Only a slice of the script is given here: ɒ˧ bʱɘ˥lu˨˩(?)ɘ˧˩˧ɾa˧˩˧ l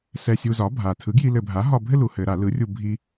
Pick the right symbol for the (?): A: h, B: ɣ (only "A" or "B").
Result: A